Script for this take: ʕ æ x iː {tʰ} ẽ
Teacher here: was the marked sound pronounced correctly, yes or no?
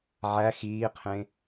no